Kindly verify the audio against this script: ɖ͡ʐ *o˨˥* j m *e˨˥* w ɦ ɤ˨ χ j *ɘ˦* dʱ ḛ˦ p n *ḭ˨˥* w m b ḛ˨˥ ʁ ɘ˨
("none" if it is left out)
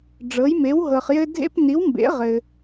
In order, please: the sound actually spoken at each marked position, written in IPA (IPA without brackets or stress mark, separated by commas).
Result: ɤ˨˥, e˨˥, ɘ˦, i˨˥